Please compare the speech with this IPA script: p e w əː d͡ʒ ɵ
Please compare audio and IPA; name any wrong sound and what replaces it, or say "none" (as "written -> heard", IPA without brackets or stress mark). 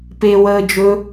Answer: none